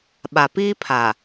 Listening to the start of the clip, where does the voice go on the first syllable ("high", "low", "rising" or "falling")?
low